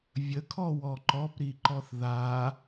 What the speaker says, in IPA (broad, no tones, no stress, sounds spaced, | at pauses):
vʲ ə kʰ ɔ w ɔ ǃ ɔ p ɾ i ǃ ɔ θ ð a